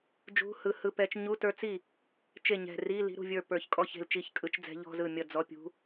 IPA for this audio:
d͡ʒṳ˧˥˧hɯ˧˩hɯ˧˥˧pɛ˧˥t͡ʃ ɲu˧˥˧tə˞˧˥t͡si˥˩ | t͡ʃe˥˩ɲɛ̤˧˩ ri˧˥˧ li̤˧˥ɾṳ˧˩vʲə˞˥˩ pə˞˧˩çkʼɔ˥˩çe̤˥˩l t͡ʃi˥˩çkʼɯ˧˥t͡ʃd͡zɛ̤˧˥ ʎɔ̤˧˥˧zɯ˥˩ mʲʌ˥˩d͡zɔ˧˥˧ pʲṳ˧˥

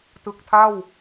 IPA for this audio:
tɯ˨˩k̚tʰa˥˩w

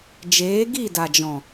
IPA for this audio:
d͡ʒeː˨˦ɡi˦˨da˨d͡ʒɔ̃˨

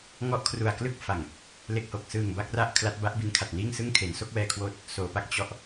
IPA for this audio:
ŋɔ˦˥ʔkʰru˨˩a̯klɯ˥˩k̚fa˨˩ŋ | le˨˩k̚ho˨˩k̚sɯː˨˩ŋ ba˥˩k̚ra˥˩ʔ kʰla˦˥t̚ba˦˥ʔbi˧n kʰa˨˩t̚niː˥˩ŋsɯ˥˩ŋ kʰe˩˦nso˥˩k̚wɛː˧kʰwoː˦˥t̚ | soː˩˦pa˦˥k̚ t͡ɕɔ˦˥ʔ

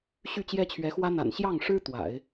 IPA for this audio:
ɕy˥˩t͡ɕjɛ˥t͡ɕʰɥɛ˧˥xwä˥ n̪a̰˨˩nɕjɑ˥˩ŋʂɻ̩˥ t̪wa̰˨˩˦ɪ̯

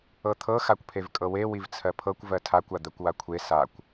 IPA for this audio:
ɤt̪ʰɤ xakʷpʰevkʼɤwe wivt͡sʰɜpʰɤkʷ vɜtʰakʷ ad̪ɜkʷwakʷʰe sakʷ

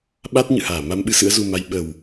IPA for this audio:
ɓa˦˥t̚ɲɨ̰˧˨haː˧˩ ma˧mɓɨ˨˦ sɨ̰˧˥ə̯zu˧ma˧j ɓə˨˩w

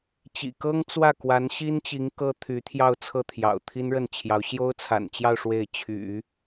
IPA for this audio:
t͡ɕḭ˨˩ kɤ˥ŋt͡swä˥˩ kwa˧˥nɕi˥nt͡ɕi˧˥ŋ kɤ˥t̪ʰy˧˥t̪ʰjɑ˥˧ʊ̯ t͡sʰɤ˥˩t̪ʰjɑ̰˨˩ʊ̯ t̪ʰi˥nɻə˥˩nt͡ɕʰjɑ˧˥ʊ̯ ɕjo˥ʊ̯t͡sʰa̰˨˩nt͡ɕjɑ˥˧ʊ̯ ʂwe˥˩ɪ̯ t͡ɕʰy̰˨˩˦

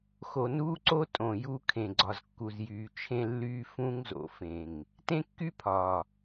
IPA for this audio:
xo˨nuː˦ǀo˦ tʼõ˨ju˦ kʰẽ˨ɡ͡ǀɒ˨zkːu˨z jyː˨t͡ʃʰẽ˦lːyː˦ fũ˦ŋ zo̰˨fẽ˨ŋ | tẽ˦kːy˦pʰɒː˨

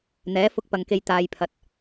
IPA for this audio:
n̪ɛː˨˥ fʊ˧k̚pɐ˨ŋ ke˧j t̪aː˨jpʰɐ˨t̚

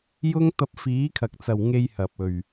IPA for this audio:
jʊ˥ŋ t̪ɐ˧p̚fiː˨˥kʰɐ˨k̚t͡sɐ˨w ŋe˧jhɐ˨p̚ɵ˨ɥ

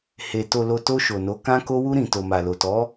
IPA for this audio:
he˨ to˨lo˨ to˧ʃo˨no˨˦ kã˧ko˧wu˧ ɾĩ˨ to˨ma˨lo˨tɔ˨˦

